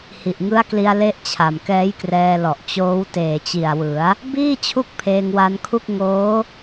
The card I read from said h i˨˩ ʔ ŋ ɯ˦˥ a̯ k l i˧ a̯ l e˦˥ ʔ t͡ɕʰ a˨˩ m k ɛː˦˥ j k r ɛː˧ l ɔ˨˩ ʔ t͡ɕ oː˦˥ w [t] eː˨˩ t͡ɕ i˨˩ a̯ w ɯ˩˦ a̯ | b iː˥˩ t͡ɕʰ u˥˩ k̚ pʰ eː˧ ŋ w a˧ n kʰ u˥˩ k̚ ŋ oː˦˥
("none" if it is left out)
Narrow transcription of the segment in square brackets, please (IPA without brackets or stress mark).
t